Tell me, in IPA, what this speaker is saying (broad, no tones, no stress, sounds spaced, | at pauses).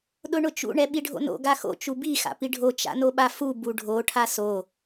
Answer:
ɗ ʊ ɳ ʊ t͡ʃ ṵ ɳ ɛ ɓ i ɖʱ o̰ n o̰ ɡ a x o̰ t͡ʃ u b i x a̰ p i ɖʱ o t͡ʃ a̰ n o ɓ a f u b u ɖʱ o ʈʰ a s o